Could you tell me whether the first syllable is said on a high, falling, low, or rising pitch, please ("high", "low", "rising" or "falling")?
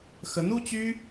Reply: rising